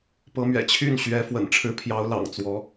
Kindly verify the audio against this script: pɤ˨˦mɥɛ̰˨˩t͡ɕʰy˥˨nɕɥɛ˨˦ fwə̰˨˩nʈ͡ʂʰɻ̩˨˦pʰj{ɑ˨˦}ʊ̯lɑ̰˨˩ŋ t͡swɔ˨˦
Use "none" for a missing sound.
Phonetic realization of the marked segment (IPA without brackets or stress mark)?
ɑ˨˦